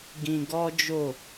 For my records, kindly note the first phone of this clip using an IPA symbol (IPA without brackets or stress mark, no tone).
ɡ